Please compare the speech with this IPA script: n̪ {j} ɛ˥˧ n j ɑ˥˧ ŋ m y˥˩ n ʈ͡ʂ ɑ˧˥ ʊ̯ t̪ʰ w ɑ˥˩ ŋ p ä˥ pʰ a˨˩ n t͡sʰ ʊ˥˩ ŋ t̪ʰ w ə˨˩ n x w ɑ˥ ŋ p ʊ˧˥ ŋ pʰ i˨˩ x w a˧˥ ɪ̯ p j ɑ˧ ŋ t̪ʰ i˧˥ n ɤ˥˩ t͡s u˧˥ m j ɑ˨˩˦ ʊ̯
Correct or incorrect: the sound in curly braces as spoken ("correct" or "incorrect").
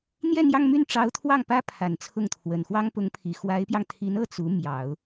correct